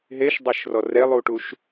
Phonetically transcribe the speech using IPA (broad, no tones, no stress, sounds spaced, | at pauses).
ɦ e ʃ dˤ e ʃ r ɔ r e lˠ u ʈ u ʃ